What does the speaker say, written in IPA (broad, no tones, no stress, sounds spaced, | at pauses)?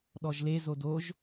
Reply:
ɗ ɔ ʒ l e z o d o ʒ